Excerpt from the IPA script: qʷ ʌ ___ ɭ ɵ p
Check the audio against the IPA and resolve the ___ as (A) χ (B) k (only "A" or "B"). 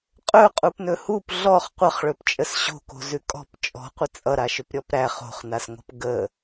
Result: A